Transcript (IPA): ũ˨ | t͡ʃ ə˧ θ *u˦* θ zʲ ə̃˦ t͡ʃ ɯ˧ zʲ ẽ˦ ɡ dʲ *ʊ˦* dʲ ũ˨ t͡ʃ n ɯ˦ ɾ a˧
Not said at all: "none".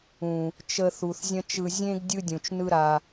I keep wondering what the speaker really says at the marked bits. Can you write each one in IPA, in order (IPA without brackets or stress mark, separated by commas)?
u˨, ɯ˦